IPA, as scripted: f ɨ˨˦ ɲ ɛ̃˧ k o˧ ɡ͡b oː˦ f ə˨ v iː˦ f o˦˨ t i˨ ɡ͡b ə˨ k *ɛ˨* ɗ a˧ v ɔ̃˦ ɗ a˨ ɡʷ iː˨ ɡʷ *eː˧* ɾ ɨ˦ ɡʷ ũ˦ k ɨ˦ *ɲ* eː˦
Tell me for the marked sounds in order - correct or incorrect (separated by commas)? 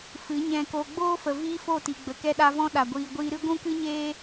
incorrect, incorrect, correct